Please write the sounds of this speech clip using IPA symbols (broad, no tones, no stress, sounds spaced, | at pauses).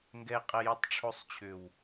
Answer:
ŋ ɡ ɛ qʼ ɛ j u tˤ ʈ͡ʂʰ o sˤ t͡ɕʰ ʏ w